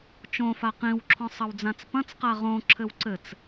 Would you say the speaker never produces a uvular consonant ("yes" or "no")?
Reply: no